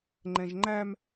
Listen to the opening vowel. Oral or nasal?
nasal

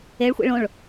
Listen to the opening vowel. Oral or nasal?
oral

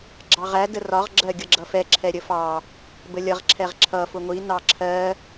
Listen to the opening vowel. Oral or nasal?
oral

